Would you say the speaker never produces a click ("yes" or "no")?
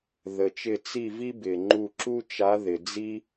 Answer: no